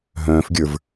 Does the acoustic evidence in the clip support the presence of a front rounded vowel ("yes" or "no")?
yes